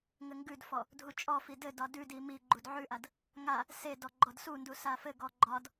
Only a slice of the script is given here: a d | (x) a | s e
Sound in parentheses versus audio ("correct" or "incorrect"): incorrect